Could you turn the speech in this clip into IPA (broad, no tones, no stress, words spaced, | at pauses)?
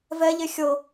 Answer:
vɛʎe xʲɤ